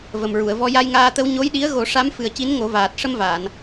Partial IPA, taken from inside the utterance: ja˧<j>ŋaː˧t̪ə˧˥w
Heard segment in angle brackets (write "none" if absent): j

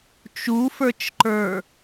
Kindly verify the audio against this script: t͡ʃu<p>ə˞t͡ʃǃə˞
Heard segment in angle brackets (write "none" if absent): f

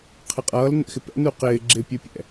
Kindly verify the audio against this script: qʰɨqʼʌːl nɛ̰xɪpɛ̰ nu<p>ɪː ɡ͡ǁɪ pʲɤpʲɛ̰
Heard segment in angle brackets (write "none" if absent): q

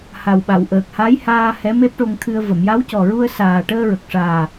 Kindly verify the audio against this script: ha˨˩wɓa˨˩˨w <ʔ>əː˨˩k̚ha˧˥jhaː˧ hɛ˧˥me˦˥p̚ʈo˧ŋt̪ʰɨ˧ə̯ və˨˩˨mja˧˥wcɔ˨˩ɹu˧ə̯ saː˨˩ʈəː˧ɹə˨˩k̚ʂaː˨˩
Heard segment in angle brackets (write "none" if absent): ʔ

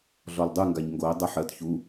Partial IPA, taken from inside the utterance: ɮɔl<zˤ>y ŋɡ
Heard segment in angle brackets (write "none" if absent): dˤ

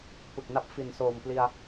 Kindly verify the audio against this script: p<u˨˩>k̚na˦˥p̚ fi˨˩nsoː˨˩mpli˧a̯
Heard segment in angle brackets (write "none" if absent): ɯ˨˩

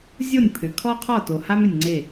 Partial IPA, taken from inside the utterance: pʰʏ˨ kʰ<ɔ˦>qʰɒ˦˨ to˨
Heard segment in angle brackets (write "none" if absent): ɔ˦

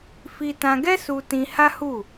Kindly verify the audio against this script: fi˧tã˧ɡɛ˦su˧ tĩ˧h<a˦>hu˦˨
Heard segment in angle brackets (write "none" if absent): a˦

